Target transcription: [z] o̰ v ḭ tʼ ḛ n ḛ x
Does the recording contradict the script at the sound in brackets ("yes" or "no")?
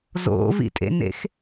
no